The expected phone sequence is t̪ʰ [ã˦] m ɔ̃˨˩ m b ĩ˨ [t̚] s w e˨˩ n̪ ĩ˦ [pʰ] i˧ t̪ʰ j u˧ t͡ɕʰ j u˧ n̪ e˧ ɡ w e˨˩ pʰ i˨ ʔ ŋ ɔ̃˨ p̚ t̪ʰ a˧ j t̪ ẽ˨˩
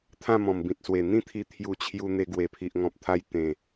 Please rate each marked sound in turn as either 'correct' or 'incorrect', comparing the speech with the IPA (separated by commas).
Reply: incorrect, correct, incorrect